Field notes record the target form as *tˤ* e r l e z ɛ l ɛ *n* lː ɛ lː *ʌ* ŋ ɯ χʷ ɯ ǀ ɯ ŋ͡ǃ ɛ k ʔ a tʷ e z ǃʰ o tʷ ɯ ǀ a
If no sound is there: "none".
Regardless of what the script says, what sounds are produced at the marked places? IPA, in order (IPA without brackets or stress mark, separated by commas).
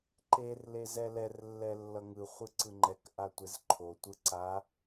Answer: ǃ, r, ʌ